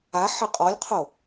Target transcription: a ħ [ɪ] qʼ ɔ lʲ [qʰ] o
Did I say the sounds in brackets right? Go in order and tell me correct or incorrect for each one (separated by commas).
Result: correct, correct